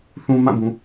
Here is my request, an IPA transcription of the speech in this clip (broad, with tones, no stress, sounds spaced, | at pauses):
θ ũ˨ m ã˦˨ b ũ˨